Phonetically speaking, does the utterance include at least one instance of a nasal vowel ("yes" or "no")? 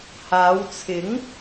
no